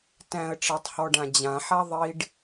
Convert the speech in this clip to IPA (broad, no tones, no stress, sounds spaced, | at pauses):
t æ̃ ə̯ ʈ͡ʂ ɑ tˤ h ɔ ɖ ã d͡ʑ ã ħ a ðˤ i ɖ